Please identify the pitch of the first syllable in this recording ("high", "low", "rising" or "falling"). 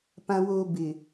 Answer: low